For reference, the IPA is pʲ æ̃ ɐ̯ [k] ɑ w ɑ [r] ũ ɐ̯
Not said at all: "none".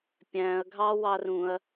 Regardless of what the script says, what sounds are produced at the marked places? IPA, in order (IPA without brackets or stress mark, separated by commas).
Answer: ɡʱ, r